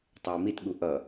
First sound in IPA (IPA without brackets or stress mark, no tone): tˤ